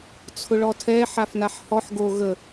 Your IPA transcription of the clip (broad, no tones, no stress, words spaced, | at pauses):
t͡sʰʊɭɔtʰɛ ħafnaħhɔħ ɡo ɣə